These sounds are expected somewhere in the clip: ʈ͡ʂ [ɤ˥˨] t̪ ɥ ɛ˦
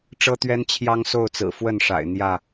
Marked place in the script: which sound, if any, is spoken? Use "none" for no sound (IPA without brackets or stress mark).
ɤ˦